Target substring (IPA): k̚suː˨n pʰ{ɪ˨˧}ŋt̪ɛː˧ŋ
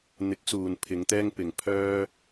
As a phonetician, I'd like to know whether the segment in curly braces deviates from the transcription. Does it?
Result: no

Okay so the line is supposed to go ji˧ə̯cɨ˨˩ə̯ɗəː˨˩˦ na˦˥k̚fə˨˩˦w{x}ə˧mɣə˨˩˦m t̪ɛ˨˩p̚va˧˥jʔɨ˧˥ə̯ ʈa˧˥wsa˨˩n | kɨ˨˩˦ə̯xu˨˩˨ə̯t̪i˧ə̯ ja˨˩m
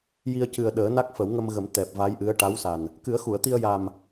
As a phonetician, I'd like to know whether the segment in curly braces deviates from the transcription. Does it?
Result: yes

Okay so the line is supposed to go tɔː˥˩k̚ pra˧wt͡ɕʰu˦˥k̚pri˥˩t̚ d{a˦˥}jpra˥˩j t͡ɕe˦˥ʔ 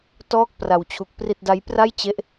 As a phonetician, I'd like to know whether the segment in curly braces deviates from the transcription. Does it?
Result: no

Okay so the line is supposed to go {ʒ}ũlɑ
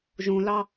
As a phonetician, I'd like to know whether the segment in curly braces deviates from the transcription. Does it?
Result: no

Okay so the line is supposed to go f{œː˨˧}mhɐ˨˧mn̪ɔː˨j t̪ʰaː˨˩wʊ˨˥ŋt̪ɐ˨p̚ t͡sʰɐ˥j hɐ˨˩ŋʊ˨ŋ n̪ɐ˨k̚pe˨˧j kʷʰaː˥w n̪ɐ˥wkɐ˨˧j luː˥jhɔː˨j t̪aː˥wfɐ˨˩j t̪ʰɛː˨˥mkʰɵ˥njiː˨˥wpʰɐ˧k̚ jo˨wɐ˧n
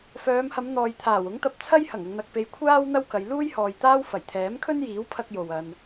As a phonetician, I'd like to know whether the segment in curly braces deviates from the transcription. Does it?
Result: no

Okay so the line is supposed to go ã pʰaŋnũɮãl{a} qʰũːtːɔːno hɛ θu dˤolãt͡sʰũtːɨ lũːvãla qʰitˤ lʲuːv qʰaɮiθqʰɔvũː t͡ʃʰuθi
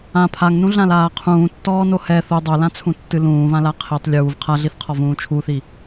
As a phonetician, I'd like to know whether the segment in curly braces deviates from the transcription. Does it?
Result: yes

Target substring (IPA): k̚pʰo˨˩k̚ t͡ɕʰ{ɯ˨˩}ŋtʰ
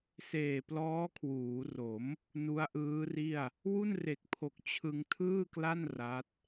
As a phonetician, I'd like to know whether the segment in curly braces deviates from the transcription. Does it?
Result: yes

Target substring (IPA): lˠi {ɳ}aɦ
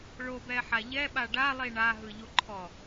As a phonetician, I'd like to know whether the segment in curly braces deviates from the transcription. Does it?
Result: no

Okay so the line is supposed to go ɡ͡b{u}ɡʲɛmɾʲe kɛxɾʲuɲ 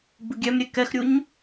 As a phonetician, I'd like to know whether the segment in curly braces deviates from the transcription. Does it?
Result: no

